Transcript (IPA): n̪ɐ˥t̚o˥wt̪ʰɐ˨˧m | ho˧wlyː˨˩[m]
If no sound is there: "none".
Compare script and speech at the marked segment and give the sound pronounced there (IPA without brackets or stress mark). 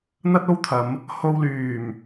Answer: m